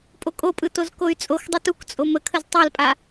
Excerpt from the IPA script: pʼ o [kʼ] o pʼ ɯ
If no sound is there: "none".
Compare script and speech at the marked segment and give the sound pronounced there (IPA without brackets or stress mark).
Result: kʼ